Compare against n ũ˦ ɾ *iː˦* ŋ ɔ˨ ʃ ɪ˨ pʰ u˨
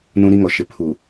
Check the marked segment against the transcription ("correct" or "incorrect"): incorrect